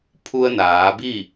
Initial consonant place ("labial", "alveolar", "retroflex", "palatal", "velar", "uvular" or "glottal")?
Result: labial